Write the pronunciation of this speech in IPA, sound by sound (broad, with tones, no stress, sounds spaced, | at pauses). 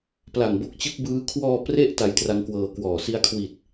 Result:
p l a˨˩ ŋ b o˦˥ k̚ t͡ɕ ɯ˦˥ k̚ b ɯː˦˥ kʰ w ɔː˧ p r e˥˩ ʔ t a˧ j t r a˦˥ ŋ k w ɤː˧ k w ɔː˨˩ s i˧ a̯ kʰ w i˨˩ t̚